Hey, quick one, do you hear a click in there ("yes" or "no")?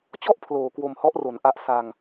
no